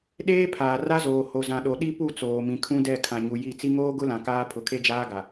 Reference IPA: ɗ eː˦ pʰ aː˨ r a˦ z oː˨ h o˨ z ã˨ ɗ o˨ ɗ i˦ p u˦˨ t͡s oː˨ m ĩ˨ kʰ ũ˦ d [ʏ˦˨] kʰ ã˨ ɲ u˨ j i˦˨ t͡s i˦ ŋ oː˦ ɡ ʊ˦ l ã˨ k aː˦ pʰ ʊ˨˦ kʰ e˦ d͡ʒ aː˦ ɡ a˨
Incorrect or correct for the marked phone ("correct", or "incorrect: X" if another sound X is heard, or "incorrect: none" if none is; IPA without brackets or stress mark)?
incorrect: ɛ˦˨